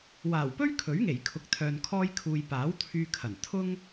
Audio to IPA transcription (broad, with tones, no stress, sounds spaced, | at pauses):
w aː˨˩ w p ɵ˥ ɥ kʰ ɵ˨˥ ɥ ŋ e˨˩ j kʰ ʊ˨ k̚ t̪ʰ œː˨ n kʰ ɔː˧ j kʰ uː˨ j p aː˨˥ w t̪ʰ yː˧ kʰ ɐ˨˩ n t̪ʰ ʊ˥ ŋ